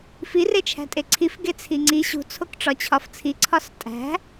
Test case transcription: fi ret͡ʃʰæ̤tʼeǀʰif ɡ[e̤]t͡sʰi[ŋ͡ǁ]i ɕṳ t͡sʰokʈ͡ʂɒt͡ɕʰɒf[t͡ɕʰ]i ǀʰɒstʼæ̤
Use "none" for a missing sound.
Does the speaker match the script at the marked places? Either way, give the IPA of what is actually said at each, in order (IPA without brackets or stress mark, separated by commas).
e, ŋ͡ǀ, t͡sʰ